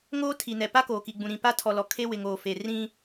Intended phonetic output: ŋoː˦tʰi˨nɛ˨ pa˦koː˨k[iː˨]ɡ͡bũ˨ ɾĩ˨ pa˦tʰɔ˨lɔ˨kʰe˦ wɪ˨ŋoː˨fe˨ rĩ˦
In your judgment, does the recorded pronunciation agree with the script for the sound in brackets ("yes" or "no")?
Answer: no